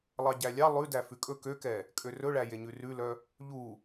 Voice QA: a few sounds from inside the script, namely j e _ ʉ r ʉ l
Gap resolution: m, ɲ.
ɲ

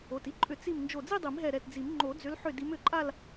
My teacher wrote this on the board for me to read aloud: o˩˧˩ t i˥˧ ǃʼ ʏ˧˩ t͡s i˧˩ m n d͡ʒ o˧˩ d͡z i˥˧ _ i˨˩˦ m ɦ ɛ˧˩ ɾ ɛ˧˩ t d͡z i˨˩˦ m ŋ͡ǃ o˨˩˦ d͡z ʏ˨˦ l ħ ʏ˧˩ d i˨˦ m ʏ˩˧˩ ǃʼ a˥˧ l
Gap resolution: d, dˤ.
dˤ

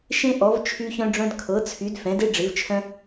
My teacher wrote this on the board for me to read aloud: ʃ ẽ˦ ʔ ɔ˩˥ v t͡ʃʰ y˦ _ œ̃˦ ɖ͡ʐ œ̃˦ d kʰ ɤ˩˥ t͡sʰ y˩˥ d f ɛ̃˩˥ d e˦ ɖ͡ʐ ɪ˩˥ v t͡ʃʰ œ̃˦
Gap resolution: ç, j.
ç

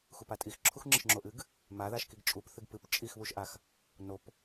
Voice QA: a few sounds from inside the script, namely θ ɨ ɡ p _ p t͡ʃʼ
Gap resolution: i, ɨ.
ɨ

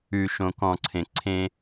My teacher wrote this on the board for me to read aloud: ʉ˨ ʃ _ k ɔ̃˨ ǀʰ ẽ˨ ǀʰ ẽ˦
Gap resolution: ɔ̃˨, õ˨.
õ˨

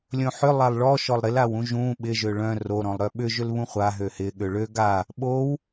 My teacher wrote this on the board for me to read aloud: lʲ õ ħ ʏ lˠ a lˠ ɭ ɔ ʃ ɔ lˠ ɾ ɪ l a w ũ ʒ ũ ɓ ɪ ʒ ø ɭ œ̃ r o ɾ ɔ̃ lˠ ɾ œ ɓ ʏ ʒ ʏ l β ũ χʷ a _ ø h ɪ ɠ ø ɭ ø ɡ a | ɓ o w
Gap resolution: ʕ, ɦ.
ɦ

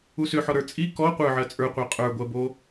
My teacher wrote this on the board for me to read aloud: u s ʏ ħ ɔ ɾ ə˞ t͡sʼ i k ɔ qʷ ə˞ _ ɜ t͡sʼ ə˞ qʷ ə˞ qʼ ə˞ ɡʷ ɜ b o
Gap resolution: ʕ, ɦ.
ʕ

